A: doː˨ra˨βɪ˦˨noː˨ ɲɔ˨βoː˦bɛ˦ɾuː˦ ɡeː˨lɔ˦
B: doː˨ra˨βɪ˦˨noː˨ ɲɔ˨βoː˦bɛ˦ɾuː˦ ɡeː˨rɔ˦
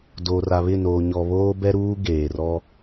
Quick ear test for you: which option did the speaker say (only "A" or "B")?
B